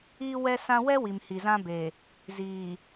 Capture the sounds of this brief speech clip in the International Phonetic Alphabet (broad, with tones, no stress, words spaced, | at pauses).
iː˦ wɛ˦sã˦ wɛ˦wi˨m hi˨zã˦be˨ | ziː˨